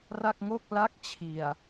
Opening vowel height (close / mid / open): open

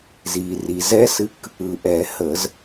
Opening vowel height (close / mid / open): close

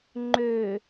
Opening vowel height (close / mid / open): mid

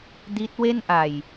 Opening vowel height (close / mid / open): close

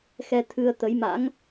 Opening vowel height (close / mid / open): mid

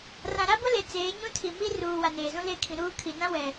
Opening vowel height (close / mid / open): open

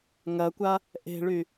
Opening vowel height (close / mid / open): open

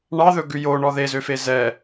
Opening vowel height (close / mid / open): open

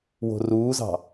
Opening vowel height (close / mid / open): mid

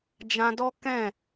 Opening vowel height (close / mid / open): open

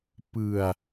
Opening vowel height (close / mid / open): close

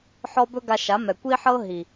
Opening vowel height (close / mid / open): mid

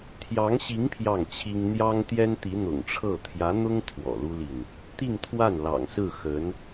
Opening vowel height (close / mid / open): open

